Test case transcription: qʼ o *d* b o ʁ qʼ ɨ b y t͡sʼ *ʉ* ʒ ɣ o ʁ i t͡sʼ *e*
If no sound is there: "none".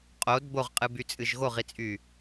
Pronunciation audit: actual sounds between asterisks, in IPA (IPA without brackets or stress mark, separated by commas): d, ɨ, y